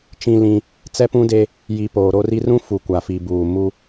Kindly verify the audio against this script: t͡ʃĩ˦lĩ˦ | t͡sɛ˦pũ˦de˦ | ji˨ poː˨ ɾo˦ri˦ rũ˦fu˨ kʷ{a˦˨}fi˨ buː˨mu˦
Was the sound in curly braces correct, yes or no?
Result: no